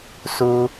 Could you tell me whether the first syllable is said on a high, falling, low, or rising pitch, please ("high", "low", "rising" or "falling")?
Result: high